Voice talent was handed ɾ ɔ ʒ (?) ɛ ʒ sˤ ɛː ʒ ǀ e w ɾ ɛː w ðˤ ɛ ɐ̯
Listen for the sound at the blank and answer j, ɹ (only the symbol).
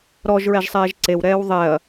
ɹ